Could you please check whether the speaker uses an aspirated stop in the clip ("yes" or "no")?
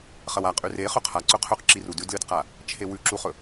yes